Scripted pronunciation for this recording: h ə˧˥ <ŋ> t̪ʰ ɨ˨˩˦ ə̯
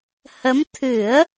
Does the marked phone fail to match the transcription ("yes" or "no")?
yes